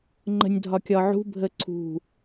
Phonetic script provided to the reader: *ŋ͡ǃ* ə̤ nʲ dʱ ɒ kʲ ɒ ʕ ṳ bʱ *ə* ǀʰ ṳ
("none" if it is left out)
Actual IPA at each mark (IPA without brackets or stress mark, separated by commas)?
ŋ͡ǃ, ə